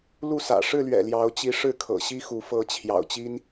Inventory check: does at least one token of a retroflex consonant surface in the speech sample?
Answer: yes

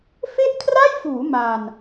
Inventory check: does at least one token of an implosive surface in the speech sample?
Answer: no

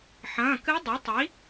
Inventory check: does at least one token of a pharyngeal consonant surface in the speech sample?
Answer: yes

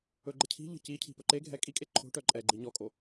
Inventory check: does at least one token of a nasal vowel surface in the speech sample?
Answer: no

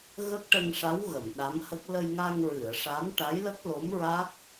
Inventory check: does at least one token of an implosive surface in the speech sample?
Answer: yes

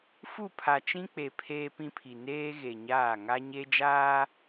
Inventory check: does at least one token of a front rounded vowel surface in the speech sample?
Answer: no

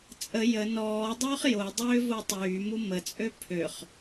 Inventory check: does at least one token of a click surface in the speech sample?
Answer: no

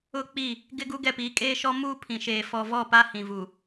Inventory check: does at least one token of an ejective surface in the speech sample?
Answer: yes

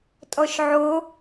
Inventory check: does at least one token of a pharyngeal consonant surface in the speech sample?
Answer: yes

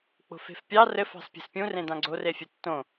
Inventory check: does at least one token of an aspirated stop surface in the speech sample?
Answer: no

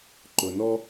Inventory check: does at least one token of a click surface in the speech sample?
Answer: yes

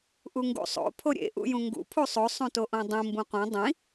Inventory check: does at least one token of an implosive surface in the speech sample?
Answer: no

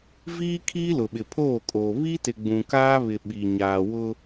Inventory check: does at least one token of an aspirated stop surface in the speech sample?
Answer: yes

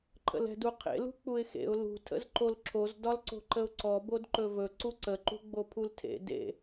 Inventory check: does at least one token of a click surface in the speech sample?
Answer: yes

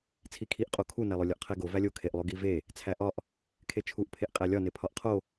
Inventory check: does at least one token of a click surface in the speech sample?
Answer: no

